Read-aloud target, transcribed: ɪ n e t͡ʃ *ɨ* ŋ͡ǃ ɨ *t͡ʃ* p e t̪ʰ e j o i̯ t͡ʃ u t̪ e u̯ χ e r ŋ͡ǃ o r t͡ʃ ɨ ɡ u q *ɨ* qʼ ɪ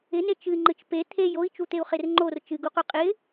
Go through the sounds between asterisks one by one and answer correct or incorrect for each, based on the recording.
correct, correct, incorrect

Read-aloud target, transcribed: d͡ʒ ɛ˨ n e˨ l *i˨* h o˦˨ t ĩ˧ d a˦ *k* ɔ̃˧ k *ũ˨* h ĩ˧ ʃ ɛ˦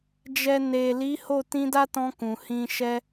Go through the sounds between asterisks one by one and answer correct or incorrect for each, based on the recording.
incorrect, incorrect, correct

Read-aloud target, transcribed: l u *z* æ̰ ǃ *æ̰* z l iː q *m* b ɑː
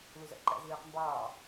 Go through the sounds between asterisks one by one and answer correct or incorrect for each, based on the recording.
correct, correct, correct

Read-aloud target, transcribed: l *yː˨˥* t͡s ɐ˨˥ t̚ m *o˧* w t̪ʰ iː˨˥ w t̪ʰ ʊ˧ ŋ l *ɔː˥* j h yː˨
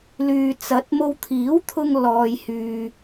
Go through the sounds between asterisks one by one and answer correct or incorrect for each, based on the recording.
incorrect, correct, incorrect

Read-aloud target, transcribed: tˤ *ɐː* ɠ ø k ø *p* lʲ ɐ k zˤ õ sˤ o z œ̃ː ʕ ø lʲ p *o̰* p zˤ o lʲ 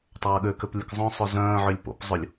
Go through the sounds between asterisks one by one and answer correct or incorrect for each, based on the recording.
correct, correct, correct

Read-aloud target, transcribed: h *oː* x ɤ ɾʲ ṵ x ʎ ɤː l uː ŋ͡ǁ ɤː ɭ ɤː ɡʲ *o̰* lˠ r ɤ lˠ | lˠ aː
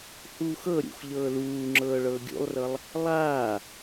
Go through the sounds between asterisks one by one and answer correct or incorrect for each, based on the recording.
incorrect, incorrect

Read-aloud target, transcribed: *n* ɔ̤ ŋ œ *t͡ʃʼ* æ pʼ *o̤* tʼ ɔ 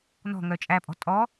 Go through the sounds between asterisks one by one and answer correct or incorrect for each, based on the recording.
correct, correct, incorrect

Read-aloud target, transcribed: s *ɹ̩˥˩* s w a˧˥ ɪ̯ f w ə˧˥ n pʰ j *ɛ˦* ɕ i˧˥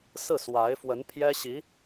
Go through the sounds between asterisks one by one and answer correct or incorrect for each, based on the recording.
correct, incorrect

